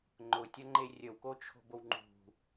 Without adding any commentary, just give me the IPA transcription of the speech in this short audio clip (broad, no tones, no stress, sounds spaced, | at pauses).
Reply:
ŋ͡ǃ ʊ tʲ ɐ ŋ͡ǃ e rʲ ə w k o t͡ʃʰ o̤ b o w ŋ͡ǃ ṳ